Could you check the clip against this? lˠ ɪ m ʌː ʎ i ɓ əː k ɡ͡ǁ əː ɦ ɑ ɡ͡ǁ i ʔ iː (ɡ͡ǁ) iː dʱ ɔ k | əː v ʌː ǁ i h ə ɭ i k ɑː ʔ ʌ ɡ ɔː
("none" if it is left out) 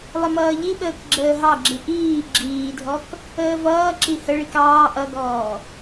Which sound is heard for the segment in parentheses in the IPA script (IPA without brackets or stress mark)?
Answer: ɡ͡ǁ